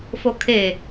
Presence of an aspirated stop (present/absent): present